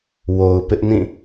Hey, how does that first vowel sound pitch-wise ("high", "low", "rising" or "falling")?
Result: low